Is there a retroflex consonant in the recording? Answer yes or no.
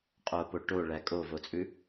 yes